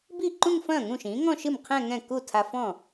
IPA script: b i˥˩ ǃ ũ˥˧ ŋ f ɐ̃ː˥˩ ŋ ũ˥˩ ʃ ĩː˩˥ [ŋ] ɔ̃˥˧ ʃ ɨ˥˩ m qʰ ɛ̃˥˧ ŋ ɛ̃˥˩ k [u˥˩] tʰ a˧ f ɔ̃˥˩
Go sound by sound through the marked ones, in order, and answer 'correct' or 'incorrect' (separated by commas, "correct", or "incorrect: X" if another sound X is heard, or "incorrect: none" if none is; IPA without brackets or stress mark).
correct, correct